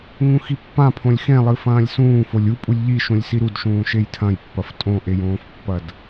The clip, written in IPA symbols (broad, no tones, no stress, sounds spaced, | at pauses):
ŋ ũ x i pː ã pʰ õ lʲ x ẽ lˠ ɨ f ɐ̃ː lʲ s ũː f o lʲ u pʼ u lʲ ʎ i ʃ ũ lʲ s i ɾ u d ʃ ũː ʃ e j tʰ ɐ̃ j pː ɐ f tʼ õ ʔ e j õː f pː ɐ d